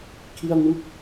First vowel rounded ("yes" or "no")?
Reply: no